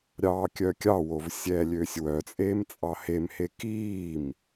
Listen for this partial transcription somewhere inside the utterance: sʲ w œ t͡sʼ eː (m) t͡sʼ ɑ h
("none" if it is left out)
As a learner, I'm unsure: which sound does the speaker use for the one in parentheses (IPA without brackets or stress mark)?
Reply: m